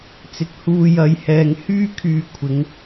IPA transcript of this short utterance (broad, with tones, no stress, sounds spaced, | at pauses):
t͡s ɪ˨˥ k̚ h uː˨ j ɐ˨˧ j h ɛː˨ ŋ h yː˥ kʰ yː˧ kʷʰ ɪ˨˧ ŋ